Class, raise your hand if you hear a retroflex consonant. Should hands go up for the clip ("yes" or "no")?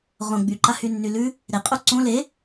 no